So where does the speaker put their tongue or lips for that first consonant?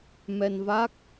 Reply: lips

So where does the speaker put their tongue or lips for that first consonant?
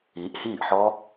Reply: throat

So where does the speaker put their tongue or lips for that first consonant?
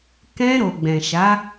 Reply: velum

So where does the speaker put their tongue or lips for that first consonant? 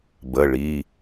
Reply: lips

